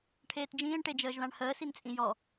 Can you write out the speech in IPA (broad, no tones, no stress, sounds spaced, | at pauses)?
ʈʰ eː t d͡ʒ ĩː ɳ ʈ e d͡ʒ əː ʒ ð ã ɳ h əː s i n t͡sʼ ĩ j ɔ